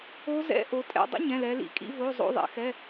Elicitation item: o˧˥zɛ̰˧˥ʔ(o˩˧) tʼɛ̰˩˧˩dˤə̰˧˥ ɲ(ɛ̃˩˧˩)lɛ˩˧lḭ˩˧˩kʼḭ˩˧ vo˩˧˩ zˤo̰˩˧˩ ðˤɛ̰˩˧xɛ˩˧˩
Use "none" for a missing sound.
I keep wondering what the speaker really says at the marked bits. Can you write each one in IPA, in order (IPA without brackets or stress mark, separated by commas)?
o˩˧, ɛ̃˩˧˩